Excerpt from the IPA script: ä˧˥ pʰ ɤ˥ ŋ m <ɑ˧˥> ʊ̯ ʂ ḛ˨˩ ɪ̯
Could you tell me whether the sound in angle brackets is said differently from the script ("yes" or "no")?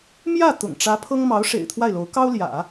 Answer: no